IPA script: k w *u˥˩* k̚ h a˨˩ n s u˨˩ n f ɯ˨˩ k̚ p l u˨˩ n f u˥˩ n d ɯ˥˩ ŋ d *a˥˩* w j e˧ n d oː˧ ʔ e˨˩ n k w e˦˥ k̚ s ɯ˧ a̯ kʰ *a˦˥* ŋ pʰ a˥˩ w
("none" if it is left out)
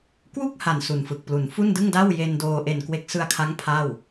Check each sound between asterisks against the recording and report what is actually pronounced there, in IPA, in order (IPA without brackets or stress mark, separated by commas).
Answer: u˥˩, a˥˩, a˦˥